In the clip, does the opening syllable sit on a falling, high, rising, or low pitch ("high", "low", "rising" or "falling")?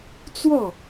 falling